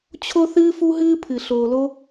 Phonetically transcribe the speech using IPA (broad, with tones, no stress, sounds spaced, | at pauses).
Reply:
t͡ɕʰ o˧ θ ɨː˧ f u˧ ɦ ɨː˧ pʰ ɨ˩ ɬ oː˩ l o˧